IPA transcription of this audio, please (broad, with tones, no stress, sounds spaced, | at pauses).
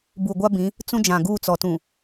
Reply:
b u˨ ɡʷ a˦ b ĩ˨˦ | t͡s ũ˦ d͡ʒ ã˨ ɡ uː˦˨ t͡s ɔ˨ t ũ˨